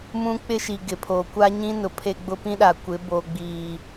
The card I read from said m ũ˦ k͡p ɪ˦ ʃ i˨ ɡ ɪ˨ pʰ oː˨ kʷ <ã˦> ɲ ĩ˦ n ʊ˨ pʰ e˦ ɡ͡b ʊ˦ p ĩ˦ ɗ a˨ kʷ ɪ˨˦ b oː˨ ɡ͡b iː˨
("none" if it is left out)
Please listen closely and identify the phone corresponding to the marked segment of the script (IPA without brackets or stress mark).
a˦